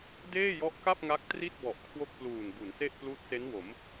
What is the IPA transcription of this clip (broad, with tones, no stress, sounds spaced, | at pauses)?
d eː˥˩ j ɔ˦˥ ʔ k a˥˩ p̚ ŋ a˦˥ k̚ t r i˥˩ t̚ b ɔ˨˩ ʔ kʰ w o˥˩ k̚ p l uː˨˩ n b u˩˦ n s e˥˩ ʔ p l uː˦˥ t̚ s e˦˥ n w o˩˦ m